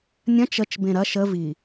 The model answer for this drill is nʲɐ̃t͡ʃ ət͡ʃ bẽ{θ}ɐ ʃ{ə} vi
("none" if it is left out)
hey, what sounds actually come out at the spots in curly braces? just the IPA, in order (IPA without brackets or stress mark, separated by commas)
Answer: ɾ, ə